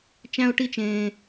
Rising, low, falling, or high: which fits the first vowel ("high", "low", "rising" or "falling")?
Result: high